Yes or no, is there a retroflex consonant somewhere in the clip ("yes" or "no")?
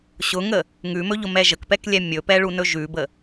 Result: yes